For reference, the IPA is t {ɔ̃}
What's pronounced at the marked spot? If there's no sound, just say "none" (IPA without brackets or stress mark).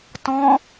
ɔ̃